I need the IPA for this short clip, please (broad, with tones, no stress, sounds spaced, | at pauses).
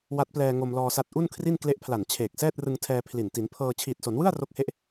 w a˦˥ t̚ p l ɛː˧ ŋ o˧ m l ɔː˧ s a˦˥ t̚ ʔ u˥˩ n kʰ r i˥˩ n k l e˦˥ ʔ pʰ l a˨˩ n t͡ɕʰ eː˨˩ k̚ s ɛː˥˩ t̚ r ɯ˧ ŋ tʰ ɛː˧ pʰ l i˨˩ n t i˩˦ n pʰ ɤː˧ t͡ɕʰ iː˨˩ t̚ s o˩˦ n w ɯ˥˩ a̯ r o˦˥ k̚ h e˦˥ ʔ